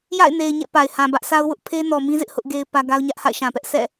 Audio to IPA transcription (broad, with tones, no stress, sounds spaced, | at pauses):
j a̰˦˨ ɪ̯ n e˨ ɪ̯ ɲ ɛ̰˦˨ p a˨ ɪ̯ h ã˨ b ä˦ ʔ sʰ a˦ ʊ̯ w ʊ˦ ʔ pʰ e˦ n ɔ˨ m ĩ˦ z ɪ˦ ʔ h ʊ˦ ʔ ɡ e˦ ɪ̯ p ä˦ ɡ a˦ ʊ̯ ɲ ä˦ ʔ h a̰˦˨ ɪ̯ ʃ ã˨ p ɛ˦ ʔ s ɛ̰˦˨